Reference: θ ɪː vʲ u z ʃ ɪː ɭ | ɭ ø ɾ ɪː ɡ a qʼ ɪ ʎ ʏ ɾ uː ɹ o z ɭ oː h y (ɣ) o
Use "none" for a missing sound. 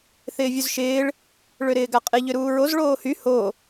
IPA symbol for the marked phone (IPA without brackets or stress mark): h